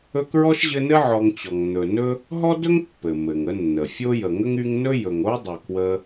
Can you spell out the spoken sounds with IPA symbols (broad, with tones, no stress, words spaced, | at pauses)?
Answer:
ɵ˦kɹɔ˥ʃʑɘ˦nɘ˥ ʕɔ˦ŋt͡ɕɔ˨ŋ n̪ɵ˨nɵ˥ | ɦɔ˥dɵ˥ŋpːɘ˩ mɘ˩ŋə˦nːə˩ fʲo˥jə˨ ŋə˥ŋy˦ŋ nɵ˥jɵ˨ŋ o˥dˤɘ˨ kwə˦